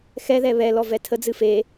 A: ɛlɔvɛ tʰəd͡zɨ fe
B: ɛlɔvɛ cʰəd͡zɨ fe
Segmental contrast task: A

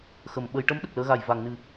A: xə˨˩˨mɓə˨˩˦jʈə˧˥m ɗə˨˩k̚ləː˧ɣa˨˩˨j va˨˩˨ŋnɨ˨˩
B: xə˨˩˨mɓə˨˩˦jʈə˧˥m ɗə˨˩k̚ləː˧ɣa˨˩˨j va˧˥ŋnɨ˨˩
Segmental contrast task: A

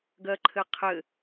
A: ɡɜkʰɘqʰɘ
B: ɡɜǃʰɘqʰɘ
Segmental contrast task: B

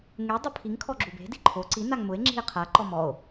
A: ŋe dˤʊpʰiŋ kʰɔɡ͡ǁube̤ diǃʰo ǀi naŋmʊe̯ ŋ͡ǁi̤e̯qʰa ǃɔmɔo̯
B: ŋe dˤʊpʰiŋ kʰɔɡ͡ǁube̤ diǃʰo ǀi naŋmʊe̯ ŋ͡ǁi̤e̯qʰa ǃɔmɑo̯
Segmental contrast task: A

